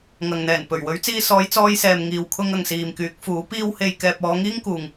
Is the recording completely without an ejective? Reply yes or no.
yes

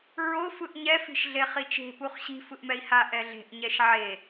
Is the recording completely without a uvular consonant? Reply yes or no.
no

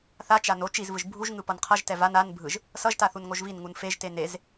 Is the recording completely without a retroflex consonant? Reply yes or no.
yes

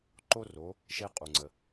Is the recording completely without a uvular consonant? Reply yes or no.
no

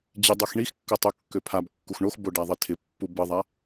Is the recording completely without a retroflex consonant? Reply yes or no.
no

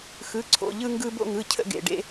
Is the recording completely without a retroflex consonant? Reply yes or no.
no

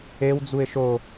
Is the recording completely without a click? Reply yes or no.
yes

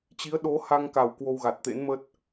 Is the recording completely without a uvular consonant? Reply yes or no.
yes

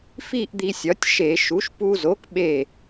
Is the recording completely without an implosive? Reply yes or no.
no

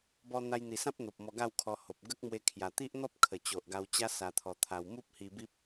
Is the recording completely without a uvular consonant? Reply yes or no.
yes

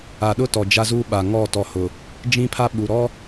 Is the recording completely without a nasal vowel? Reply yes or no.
no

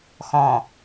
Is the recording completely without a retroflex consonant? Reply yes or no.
yes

